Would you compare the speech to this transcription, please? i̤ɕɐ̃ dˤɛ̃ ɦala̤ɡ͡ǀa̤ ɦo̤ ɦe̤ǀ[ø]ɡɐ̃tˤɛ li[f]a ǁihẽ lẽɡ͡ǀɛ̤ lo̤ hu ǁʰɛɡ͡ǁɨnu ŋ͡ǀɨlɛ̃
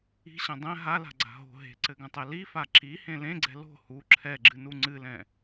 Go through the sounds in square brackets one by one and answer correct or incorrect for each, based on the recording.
incorrect, correct

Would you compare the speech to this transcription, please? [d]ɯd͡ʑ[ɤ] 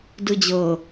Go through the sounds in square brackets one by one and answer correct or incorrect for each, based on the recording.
correct, correct

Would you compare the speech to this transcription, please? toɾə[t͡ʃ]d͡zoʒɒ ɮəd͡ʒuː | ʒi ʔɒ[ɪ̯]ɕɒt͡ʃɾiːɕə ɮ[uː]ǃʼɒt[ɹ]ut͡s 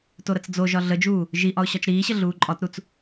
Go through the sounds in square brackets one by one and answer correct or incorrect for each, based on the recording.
incorrect, incorrect, correct, incorrect

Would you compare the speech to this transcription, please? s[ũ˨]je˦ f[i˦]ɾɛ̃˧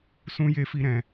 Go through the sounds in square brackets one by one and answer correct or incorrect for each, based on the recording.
incorrect, correct

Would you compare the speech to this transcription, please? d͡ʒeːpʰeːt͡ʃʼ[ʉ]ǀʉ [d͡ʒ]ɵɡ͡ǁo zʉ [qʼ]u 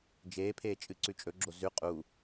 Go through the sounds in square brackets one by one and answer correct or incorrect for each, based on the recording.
incorrect, incorrect, correct

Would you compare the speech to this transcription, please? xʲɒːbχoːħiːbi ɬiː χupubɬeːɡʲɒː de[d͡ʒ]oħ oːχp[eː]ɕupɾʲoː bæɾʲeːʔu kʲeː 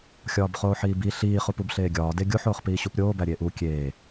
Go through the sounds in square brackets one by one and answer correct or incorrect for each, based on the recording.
incorrect, incorrect

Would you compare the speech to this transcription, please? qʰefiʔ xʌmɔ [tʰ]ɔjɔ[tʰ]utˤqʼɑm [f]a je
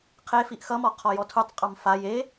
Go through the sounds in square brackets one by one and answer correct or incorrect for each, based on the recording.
incorrect, correct, correct

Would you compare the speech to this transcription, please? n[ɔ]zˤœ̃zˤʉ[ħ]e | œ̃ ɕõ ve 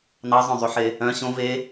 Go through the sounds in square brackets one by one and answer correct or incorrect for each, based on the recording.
incorrect, correct

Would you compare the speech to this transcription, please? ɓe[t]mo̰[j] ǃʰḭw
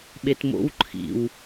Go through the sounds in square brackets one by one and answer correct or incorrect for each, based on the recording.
correct, incorrect

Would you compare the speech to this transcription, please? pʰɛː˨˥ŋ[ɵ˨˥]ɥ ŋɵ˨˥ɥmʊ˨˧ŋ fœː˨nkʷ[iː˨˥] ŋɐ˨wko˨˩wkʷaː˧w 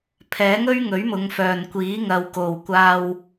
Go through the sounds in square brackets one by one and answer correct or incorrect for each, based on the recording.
incorrect, correct

